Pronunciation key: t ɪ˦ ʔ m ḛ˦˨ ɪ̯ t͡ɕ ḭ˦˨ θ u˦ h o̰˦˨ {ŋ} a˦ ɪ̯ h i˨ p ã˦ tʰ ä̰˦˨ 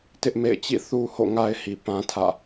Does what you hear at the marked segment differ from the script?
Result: no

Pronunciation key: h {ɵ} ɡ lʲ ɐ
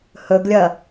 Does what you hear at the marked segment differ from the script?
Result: no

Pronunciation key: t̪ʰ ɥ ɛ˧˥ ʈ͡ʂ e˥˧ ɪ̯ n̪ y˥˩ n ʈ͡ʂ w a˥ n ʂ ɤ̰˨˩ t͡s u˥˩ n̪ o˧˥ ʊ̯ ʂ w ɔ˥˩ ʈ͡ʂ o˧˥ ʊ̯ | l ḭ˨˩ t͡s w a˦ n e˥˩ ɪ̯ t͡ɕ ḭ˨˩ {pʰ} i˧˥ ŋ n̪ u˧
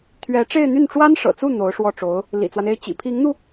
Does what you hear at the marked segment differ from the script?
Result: no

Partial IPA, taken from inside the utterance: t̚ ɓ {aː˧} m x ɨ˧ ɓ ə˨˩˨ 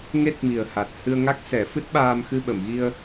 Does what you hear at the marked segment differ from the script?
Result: no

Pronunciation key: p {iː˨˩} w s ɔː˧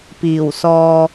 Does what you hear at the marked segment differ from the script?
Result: no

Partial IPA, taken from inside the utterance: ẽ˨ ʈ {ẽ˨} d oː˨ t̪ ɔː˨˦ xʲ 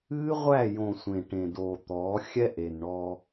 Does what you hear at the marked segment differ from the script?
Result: no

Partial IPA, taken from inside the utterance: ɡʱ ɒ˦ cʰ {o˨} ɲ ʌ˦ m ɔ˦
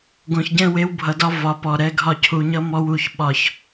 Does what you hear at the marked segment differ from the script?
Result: yes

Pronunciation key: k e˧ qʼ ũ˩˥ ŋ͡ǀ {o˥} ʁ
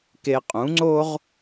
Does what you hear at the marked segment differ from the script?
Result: no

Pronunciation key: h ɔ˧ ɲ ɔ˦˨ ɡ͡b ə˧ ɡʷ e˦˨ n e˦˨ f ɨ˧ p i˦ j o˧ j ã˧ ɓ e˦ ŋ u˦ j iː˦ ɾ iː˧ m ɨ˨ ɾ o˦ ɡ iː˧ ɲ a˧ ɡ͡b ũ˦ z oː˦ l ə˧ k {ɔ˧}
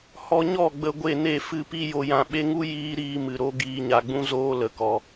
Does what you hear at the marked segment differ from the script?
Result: no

